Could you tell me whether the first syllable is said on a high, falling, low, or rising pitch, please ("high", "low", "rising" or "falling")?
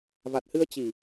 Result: low